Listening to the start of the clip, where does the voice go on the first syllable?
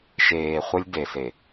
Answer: low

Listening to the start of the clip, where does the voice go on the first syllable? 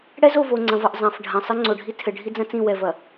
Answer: high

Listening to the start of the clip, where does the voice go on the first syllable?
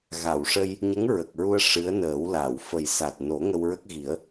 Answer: low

